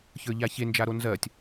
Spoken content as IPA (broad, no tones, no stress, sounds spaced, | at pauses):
ç ə˞ ʎ a ç e n d͡ʒ a ɾ o n z ɜ tʲ